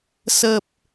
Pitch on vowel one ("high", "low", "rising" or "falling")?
low